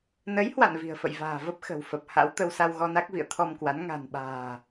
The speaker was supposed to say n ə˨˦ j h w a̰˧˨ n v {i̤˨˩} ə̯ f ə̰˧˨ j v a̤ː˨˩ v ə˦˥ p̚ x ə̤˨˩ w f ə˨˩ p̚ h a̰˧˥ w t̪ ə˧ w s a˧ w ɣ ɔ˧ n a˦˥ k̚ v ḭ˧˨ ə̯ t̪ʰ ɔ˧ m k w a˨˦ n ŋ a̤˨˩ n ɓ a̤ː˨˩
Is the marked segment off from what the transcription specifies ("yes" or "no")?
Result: no